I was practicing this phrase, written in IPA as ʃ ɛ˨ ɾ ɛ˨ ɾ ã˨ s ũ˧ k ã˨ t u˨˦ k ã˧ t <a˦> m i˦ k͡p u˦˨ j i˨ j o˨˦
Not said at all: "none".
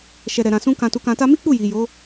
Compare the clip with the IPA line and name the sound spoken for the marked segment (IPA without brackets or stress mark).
a˦